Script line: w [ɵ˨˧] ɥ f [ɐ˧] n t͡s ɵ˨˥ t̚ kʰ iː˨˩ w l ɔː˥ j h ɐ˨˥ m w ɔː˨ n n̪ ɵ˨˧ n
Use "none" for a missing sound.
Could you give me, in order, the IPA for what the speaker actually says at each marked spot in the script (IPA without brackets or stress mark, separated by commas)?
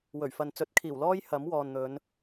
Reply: ɵ˨˩, ɐ˨